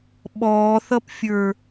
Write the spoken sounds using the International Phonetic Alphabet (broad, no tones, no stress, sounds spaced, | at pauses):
ɓ ɔː θ ʌ p fʲ ə˞